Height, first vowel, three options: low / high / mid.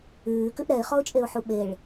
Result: high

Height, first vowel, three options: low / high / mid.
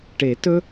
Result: mid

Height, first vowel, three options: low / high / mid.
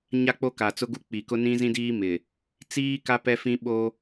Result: low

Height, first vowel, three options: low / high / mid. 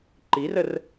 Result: high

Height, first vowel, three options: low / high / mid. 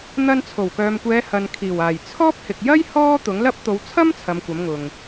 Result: low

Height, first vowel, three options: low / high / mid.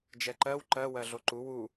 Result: mid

